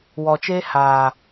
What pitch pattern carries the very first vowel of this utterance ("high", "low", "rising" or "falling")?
low